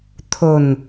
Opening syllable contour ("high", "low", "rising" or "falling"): low